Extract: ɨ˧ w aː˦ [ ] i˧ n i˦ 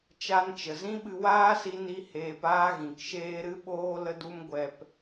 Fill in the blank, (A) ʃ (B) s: B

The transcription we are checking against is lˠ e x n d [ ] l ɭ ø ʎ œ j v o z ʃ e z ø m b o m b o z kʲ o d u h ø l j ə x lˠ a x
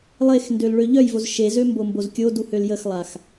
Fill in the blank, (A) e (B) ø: B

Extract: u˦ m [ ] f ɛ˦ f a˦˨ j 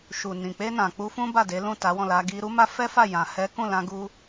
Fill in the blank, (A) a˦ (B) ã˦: A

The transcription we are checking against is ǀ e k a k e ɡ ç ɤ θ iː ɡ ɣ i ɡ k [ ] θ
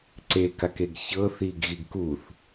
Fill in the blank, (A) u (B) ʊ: A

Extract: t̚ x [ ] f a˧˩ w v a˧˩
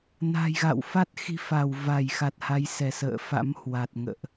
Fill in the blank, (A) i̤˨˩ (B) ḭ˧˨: A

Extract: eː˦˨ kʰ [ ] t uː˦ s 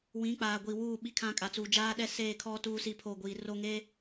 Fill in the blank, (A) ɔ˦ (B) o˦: A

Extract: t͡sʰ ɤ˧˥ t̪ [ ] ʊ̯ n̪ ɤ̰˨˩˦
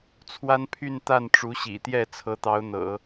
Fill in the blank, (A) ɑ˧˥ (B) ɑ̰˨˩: A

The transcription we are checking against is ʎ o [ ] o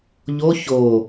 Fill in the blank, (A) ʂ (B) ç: B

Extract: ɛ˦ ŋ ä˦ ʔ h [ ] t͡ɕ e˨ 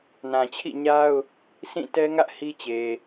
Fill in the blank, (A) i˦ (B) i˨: A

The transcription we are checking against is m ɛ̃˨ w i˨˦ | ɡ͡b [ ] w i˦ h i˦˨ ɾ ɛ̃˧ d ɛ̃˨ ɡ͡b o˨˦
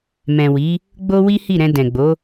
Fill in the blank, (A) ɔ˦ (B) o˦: B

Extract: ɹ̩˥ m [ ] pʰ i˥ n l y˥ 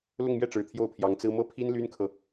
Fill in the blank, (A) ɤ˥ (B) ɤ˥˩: B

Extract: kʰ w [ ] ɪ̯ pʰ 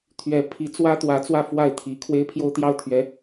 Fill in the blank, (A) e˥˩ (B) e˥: B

